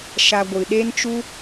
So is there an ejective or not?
no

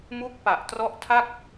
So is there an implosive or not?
no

